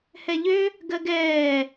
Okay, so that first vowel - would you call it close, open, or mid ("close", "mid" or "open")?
mid